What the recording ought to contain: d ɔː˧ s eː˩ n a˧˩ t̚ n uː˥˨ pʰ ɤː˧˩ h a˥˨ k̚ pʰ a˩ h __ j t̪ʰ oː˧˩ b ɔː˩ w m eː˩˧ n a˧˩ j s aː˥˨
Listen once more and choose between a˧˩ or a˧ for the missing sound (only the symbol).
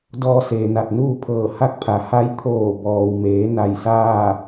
a˧